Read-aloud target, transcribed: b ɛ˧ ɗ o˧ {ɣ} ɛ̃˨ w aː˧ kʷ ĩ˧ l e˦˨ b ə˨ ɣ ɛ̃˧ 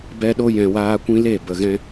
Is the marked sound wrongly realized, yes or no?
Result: yes